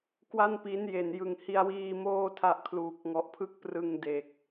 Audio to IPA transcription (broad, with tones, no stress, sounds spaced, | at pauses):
k w a˥˩ n p i˦˥ n j e˨˩ n j ɯ˨˩ ŋ h i˧ a̯ w iː˧ m oː˥˩ tʰ a˦˥ ʔ kʰ l uː˨˩ k̚ ŋ ɔ˨˩ ʔ pʰ ɯ˥˩ k̚ p r ɯ˧ ŋ d e˨˩ k̚